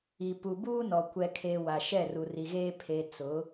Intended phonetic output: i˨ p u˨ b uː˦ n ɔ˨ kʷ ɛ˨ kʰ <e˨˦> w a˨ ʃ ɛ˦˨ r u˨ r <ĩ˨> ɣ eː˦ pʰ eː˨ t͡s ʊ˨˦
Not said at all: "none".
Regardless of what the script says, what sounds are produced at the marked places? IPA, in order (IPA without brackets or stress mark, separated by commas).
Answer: e˨, i˨